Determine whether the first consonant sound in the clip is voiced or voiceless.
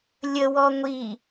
voiced